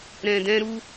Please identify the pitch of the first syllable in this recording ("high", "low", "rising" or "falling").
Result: low